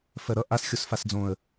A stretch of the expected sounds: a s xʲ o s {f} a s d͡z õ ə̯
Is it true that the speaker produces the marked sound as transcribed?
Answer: yes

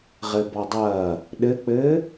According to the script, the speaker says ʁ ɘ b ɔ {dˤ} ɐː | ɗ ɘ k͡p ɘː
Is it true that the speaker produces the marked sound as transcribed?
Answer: yes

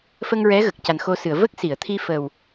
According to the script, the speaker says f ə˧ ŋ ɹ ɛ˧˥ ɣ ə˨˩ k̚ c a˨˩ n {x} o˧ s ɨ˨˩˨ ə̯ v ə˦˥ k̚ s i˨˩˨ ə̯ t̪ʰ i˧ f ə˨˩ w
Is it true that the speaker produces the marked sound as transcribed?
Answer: yes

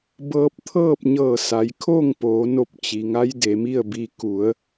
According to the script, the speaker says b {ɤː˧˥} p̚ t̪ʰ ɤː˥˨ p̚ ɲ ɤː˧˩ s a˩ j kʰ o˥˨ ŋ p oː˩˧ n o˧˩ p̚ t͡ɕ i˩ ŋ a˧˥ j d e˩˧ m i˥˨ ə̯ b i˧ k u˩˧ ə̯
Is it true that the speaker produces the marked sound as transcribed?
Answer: no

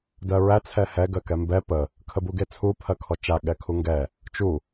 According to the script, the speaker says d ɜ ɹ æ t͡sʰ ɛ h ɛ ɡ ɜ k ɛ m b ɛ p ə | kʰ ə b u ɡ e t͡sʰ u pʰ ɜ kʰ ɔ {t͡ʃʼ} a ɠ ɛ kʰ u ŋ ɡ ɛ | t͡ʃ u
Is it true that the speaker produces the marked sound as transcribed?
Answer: no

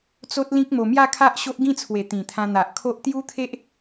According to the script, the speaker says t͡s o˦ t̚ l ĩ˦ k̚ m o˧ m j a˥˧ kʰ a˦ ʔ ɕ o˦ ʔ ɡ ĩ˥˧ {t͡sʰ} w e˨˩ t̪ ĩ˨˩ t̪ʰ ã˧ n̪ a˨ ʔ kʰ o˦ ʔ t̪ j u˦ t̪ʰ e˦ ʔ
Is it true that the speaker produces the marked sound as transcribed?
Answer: yes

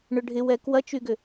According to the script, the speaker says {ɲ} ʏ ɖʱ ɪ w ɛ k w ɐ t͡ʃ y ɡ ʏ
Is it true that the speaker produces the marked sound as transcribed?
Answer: no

